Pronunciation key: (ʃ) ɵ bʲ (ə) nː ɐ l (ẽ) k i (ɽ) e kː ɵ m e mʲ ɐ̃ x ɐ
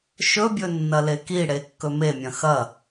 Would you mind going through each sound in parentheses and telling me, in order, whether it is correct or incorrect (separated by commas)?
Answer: correct, incorrect, incorrect, correct